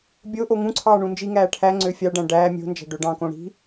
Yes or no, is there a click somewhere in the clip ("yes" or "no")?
yes